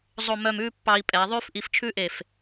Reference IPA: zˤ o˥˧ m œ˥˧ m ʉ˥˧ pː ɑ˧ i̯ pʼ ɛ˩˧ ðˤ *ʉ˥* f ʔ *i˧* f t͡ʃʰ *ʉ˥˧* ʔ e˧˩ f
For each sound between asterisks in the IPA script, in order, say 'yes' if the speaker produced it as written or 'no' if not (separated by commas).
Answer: yes, yes, no